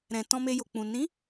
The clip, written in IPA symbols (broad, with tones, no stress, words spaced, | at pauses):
ɾɛ̃˨tɔ̃˧me˧ jo˨k͡pũ˨ nĩ˨˦